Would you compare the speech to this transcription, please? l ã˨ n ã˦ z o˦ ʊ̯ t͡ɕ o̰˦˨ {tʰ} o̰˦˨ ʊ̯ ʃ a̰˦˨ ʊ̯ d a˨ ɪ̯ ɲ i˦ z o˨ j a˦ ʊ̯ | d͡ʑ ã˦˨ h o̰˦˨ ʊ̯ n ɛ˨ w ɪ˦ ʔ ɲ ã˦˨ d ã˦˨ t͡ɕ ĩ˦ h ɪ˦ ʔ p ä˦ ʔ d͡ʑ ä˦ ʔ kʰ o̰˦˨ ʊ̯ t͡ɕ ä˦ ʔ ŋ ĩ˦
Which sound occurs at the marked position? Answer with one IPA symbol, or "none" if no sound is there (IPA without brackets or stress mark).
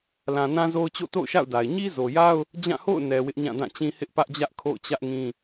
t